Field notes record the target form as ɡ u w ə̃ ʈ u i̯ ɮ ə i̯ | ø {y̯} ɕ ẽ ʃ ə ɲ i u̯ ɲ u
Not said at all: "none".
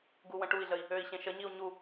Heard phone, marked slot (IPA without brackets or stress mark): i̯